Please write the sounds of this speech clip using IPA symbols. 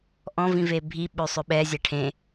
ʔ ɔ̃ v ĩ v e bʱ i ɓ ø sˤ ø ɓ ɛ zʲ ɛ ʈʰ ẽ

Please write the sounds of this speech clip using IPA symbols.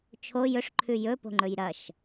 t͡ʃʰ o j ɵ ʂ ǃʰ ʉ j ɵ p o̤ ŋ͡ǃ ɵ j ɾ ɐ ʃ

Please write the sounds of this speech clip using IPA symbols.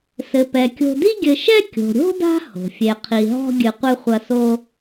s ɘ˩ p ɛ˩ kʲ o̤˨ d i˥ ɡʲ ɘ˨ ʃ ɛ˥ kʲ o̤˩ ɾʲ o̤˥ d a̤˦ h o̤˩ fʲ e˨ qʰ i˨ ɦ ɔ̤˥ ɡʲ ɨ˨ qʷ ɨ˥ χʷ ɐ˦ s o˥

